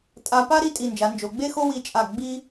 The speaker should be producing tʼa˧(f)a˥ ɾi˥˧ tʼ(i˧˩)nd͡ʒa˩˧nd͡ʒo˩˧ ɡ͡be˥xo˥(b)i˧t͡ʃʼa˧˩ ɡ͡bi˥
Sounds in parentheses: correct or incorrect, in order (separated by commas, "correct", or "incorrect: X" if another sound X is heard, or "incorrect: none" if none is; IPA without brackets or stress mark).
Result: incorrect: p, correct, incorrect: w